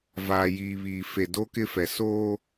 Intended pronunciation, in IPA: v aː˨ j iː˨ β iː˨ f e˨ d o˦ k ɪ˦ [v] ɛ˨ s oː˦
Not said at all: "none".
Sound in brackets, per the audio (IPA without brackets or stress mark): f